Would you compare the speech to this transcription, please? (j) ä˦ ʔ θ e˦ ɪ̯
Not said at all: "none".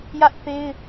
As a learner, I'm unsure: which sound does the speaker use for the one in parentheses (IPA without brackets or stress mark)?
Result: j